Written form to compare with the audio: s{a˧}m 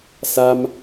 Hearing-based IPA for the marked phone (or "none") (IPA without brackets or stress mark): a˧